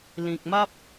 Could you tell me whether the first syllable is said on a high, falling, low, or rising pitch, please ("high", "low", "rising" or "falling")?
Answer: low